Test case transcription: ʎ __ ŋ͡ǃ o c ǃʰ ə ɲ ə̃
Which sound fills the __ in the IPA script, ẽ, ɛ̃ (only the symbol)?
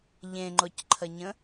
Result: ẽ